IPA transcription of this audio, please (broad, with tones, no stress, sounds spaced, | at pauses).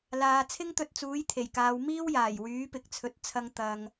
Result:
l aː˨ t͡sʰ ɪ˥ ŋ t̪ ɵ˧ t̚ t͡s uː˨˥ j t̪ʰ e˨˩ j k aː˨˧ w m iː˥ w j aː˨˩ j w yː˨˥ p ɪ˨ k̚ t͡sʰ ɵ˨˥ t̚ t͡sʰ ɐ˧ ŋ t̪ ɐ˧ ŋ